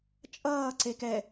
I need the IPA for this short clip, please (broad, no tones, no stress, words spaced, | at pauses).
t͡ʃʼʌː ǀek ɛ